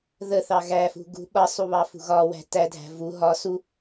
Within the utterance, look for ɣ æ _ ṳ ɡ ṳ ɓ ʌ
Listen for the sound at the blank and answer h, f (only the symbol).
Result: f